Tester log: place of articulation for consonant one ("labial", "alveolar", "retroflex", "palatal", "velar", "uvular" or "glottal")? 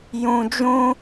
palatal